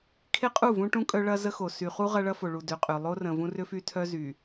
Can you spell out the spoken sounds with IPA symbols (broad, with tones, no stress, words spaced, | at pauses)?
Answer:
kʰe˦qʼu˦˨vũ˦ʈũ˦ kʼœ˦ɭɐ˦ zə˦xo˨ sy˨χu˦ ʁɐ˦ɭɐ˦fo˨ ɭu˨dø˨ qʼʏ˨ lˠo˦rə̃˨ vũ˦rʏ˦fy˦tʰœ˦ zy˨